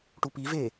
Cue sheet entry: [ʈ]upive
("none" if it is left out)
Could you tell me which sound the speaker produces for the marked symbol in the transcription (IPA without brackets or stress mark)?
ʈ